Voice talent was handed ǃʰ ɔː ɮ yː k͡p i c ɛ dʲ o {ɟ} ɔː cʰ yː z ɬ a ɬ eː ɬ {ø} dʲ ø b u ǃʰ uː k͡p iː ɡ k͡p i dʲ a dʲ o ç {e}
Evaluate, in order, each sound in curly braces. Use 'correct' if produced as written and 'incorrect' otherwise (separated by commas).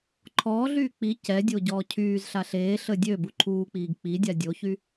correct, incorrect, incorrect